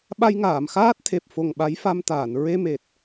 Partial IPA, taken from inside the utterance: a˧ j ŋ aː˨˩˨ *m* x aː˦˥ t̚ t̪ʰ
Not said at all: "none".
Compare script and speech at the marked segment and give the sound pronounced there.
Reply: m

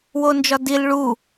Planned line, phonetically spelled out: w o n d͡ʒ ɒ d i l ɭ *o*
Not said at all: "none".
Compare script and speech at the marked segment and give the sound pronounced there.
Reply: u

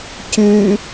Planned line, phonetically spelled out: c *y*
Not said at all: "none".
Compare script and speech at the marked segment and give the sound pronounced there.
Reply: y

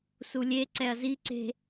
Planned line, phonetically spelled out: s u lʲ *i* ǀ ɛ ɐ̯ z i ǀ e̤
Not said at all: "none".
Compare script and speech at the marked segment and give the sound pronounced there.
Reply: e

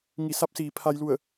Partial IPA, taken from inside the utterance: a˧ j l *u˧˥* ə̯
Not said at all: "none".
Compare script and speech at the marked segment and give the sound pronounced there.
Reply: u˧˩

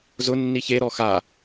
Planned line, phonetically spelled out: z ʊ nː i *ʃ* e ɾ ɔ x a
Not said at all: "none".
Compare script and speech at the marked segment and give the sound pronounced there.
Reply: ç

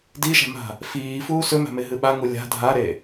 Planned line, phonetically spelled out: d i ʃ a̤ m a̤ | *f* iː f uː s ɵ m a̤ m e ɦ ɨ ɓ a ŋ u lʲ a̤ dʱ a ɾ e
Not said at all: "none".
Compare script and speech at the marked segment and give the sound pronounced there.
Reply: f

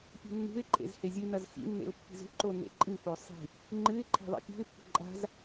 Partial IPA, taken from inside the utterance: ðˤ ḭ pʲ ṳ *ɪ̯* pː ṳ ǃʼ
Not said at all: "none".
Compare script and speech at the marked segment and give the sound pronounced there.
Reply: ɪ̯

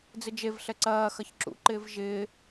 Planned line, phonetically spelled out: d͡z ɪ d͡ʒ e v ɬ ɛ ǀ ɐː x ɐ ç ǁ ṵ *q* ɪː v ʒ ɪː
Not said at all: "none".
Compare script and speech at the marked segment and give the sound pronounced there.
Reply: ǃ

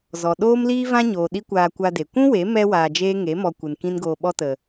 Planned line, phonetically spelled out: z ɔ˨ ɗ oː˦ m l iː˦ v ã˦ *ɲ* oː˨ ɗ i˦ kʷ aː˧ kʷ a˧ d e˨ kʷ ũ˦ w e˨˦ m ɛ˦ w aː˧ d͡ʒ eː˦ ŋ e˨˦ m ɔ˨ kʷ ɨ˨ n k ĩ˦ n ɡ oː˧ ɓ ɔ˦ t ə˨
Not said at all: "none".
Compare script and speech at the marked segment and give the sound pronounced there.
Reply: ɲ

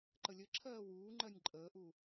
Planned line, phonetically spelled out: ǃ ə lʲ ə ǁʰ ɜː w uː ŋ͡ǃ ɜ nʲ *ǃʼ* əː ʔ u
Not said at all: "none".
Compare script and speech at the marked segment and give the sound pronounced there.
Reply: ǃʼ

